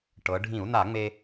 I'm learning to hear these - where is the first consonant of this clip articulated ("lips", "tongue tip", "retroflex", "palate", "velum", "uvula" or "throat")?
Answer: retroflex